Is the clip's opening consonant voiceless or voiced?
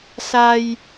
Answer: voiceless